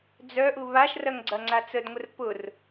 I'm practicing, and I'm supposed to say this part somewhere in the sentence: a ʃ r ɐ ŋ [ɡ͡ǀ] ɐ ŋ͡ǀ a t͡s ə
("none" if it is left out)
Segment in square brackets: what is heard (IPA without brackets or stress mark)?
ɡ͡ǀ